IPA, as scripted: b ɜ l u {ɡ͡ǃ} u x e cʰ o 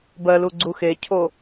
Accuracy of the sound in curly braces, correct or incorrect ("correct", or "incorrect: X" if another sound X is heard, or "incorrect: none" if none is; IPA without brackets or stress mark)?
incorrect: ɡ͡ǀ